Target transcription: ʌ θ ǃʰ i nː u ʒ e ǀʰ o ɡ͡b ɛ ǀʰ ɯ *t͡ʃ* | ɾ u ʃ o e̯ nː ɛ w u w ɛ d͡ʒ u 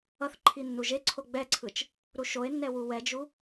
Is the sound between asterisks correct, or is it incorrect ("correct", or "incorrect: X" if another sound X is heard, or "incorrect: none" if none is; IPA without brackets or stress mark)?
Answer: correct